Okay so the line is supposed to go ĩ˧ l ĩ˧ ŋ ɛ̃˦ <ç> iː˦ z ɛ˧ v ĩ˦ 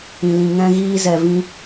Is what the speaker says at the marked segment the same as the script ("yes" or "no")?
no